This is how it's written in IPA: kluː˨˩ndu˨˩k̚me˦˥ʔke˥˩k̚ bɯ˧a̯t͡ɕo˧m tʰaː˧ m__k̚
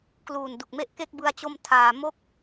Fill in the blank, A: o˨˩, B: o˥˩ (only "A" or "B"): B